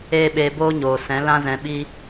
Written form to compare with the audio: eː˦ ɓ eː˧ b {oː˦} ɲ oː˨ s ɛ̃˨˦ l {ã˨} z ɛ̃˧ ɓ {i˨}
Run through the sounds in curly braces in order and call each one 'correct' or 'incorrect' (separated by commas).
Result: correct, incorrect, incorrect